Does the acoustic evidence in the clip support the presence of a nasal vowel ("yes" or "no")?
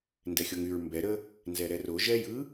no